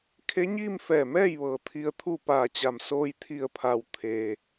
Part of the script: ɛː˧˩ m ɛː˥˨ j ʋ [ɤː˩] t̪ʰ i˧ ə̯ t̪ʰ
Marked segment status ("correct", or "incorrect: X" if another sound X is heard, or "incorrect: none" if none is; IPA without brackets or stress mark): correct